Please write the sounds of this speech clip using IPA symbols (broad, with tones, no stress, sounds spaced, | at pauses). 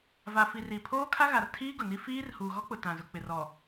v a˨ f i˨ r i˨ pʰ oː˦ kʰ a˦ ɣ a˨ r tʰ iː˦ ɡ ʊ˨ n i˦ f iː˦ r h uː˨ ɣ ɔ˦ k͡p ʊ˨ t ã˨ z ʊ˨ k͡p ɪ˨ r ɔ˨